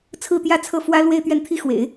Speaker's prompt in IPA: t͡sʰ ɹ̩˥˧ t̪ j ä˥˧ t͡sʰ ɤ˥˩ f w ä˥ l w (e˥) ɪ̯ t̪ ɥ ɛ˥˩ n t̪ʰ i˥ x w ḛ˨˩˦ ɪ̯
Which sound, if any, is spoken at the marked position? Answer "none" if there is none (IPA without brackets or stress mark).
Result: e˥˧